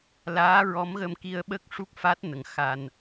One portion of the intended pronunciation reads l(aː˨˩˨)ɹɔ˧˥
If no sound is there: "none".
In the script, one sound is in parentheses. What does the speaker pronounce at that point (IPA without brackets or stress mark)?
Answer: aː˧˥